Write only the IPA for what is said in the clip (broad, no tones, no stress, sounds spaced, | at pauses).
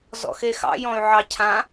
z ɔ̰ x e x ɑ̰ j ɔ̃ y̯ ʕ ɑ cʰ ã